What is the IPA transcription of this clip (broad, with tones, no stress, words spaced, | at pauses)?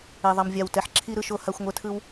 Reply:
e˨ðˤʌ˨mvʲa˨w tɛ˨ħǁʰi˦ ɾɯ˧ʃo˧ ha˧xʷŋʷɛ˧tʰɯ˦w